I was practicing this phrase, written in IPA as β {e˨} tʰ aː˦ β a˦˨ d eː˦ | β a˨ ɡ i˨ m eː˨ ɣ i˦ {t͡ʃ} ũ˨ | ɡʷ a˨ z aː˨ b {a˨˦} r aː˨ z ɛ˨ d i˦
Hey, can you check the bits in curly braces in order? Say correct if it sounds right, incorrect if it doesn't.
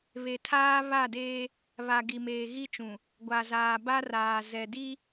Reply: correct, correct, incorrect

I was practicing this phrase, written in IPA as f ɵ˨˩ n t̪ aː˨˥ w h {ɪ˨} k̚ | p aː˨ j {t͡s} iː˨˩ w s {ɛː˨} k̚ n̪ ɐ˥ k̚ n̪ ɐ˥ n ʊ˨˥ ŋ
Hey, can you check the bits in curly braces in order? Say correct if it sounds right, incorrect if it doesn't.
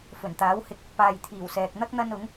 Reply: incorrect, incorrect, correct

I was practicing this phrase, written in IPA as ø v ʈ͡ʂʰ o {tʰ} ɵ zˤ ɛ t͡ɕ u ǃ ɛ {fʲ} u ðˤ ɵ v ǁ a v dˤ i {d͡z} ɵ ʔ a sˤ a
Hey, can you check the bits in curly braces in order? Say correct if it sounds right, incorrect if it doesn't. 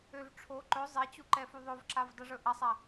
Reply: incorrect, incorrect, incorrect

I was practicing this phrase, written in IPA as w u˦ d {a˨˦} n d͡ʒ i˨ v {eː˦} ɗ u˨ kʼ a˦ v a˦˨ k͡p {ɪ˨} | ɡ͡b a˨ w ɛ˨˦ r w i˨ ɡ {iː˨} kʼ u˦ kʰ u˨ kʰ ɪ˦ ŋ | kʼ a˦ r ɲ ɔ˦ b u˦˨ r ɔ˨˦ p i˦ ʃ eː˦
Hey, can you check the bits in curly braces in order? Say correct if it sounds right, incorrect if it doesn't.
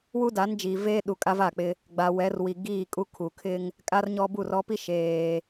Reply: correct, correct, incorrect, incorrect

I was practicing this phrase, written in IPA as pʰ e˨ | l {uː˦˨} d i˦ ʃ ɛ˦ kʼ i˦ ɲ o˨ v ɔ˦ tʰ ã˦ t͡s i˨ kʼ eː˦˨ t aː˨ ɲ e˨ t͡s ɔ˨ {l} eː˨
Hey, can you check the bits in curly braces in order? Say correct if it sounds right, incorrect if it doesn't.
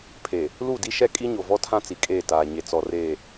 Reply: incorrect, incorrect

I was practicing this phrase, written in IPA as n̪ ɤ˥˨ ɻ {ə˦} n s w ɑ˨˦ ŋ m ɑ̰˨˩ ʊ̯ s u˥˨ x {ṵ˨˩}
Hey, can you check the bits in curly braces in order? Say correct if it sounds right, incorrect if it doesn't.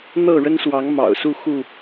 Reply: correct, incorrect

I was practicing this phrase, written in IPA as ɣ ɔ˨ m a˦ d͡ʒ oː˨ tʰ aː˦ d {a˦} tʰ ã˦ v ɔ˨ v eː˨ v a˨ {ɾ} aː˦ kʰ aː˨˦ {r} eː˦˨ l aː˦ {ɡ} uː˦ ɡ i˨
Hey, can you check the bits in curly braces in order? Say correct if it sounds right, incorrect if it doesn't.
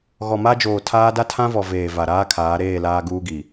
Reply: correct, correct, incorrect, correct

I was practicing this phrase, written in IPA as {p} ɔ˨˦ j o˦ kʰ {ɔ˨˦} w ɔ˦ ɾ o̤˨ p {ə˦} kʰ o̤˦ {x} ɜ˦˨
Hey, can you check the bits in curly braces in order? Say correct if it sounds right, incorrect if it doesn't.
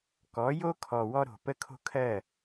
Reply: incorrect, incorrect, correct, incorrect

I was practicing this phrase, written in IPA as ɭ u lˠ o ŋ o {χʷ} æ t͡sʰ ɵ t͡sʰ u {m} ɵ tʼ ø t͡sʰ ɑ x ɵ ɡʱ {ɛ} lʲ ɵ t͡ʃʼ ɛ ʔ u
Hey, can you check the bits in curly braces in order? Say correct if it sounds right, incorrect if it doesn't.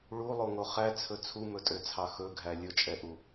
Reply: incorrect, correct, incorrect

